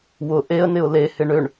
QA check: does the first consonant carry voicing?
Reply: yes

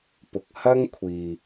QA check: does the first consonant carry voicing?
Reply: no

